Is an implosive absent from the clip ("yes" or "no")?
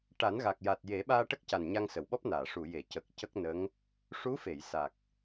no